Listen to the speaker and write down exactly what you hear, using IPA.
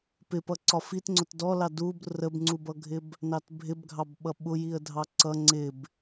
pɪpʌ ǀɒfit ŋ͡ǀʊtdɔlɑ dub rəbŋ͡ǀubʌɡʱɪb | nɑtbʱɪbɡʱɑbɓʌ ɓʊjiə̯dʱɑ ǀʌ ŋ͡ǀɪb

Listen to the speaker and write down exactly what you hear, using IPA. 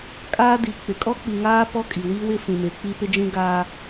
kʼaː˦di˨k͡pɪ˨ kʼɔ˦k͡pi˨ŋaː˦ pɔ˦kʼi˨ wi˦wɪ˦ fĩ˨me˨˦k͡pi˦ pɪ˦d͡ʒĩ˦ ɡaː˦

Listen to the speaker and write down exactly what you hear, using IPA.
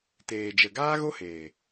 teː˨d͡ʒə˨ ɡaː˦ɣo˦heː˨

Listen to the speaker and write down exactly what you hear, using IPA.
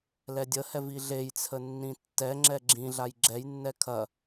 lɛdʲəhɛv iɮejt͡sʰə nːĩtːɛŋ͡ǁɛ ɡ͡ǁĩɮaj ɡ͡ǁɛjnːɛ kʰɐ

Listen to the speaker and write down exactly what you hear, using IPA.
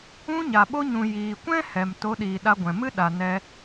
ũ˧ɲa˨ɓo˧ ɲũ˨jiː˨kʷɛ̃˦ hɛ˨m to˨˦ɗiː˨ɗa˧ɡʷɛ̃˨ mɨ˦ ɗa˨nɛ˧

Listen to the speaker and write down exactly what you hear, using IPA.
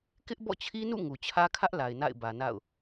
kɪ˦ʔbɔ̰˦˨t͡ɕʰi˦nṵ˦˨ ŋu˨ t͡ɕʰä˦kʰä˦ʔ la˨ɪ̯na̰˦˨ɪ̯ bä˨na̰˦˨ʊ̯

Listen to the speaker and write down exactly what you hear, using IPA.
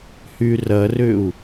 hyrɐrʏu̯

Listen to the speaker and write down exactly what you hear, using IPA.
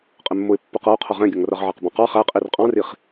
qʼɪmːʊɪ̯ pːʊqʌʊ̯ qʰʌʁɛ̃ɡʲʌŋ rʌʁʕɑqbɔ̃qɑ χæqʼir qʼɑ̃riχ

